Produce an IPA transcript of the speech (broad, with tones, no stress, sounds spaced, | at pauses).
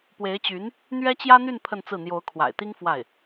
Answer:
p w e˧˥ ɪ̯ t͡ɕ y˧˥ n | n̪ ɥ ɛ˥ t͡ɕ j ä˥ n̪ y˥˧ n pʰ ə˥˧ n t͡s ɹ̩˥˩ n̪ j o˧˥ ʊ̯ kʰ w a̰˨˩ ɪ̯ t̪ i˥ ŋ f w a˥˩ ɪ̯